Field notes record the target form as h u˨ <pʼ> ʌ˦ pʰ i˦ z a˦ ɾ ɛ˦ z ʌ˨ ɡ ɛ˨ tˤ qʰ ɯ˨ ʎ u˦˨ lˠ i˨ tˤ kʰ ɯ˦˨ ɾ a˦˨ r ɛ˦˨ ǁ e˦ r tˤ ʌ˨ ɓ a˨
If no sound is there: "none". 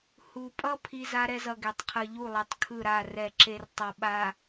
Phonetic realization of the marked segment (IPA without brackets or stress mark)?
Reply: pʼ